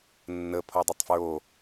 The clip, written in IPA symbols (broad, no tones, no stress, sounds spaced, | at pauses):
nː ə pʰ o dˤ ə tˤ f ɹ o